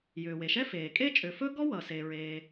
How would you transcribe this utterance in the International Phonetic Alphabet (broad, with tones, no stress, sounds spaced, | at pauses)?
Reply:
j ʏː˩ w e˩ ʃ ɛ˥ f eː˩ kʼ e˥ t͡ʃʼ ʏ˩ f ɵ˥ ɡ ɔ˥ w ʌ˩ s e˩ ɹ eː˩